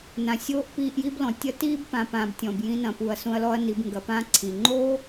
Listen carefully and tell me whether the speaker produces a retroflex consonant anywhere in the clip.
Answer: no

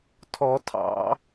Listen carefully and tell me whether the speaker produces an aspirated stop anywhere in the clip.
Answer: yes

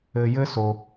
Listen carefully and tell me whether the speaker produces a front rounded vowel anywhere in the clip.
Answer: no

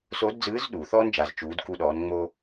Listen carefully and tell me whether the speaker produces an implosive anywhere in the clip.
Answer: yes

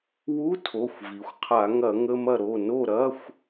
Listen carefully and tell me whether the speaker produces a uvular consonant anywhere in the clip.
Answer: yes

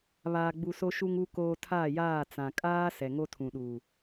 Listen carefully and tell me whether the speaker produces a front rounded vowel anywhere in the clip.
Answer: no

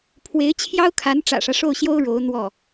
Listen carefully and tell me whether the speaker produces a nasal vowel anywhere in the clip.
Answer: no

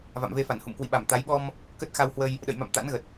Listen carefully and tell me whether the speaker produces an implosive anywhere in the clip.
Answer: yes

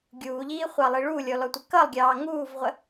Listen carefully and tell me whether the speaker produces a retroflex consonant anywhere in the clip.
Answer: yes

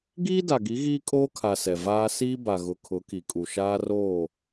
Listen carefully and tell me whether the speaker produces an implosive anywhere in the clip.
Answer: no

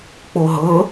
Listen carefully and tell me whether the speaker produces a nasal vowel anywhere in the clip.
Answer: no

